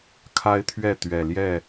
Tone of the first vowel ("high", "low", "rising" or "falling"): high